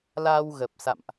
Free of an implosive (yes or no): yes